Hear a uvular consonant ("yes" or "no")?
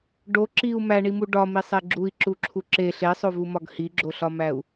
no